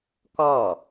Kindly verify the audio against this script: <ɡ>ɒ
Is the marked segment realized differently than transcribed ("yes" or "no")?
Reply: yes